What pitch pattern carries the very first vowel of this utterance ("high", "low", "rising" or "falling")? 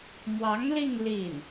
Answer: rising